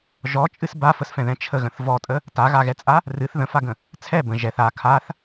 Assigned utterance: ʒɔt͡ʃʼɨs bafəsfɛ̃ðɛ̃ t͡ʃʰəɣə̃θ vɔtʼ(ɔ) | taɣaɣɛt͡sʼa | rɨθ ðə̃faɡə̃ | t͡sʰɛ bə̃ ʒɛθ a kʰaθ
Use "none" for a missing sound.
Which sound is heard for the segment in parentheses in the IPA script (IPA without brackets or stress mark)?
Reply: ə